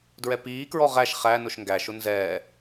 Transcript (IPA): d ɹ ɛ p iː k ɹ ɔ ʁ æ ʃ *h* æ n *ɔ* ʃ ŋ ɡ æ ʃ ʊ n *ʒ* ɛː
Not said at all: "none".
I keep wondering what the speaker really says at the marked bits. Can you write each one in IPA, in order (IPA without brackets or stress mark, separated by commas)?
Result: χ, ʊ, z